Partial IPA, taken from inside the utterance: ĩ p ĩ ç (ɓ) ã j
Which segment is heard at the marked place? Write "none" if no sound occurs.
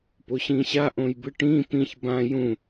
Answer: b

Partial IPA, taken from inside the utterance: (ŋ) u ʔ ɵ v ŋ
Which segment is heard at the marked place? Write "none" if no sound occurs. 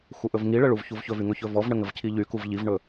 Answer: x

